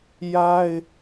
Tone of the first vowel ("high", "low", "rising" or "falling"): high